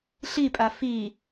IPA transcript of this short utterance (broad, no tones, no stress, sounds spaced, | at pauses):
ɬ i pʼ a f i